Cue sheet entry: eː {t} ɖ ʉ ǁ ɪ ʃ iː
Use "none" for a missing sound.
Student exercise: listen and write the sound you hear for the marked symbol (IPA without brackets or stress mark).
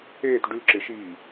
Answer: t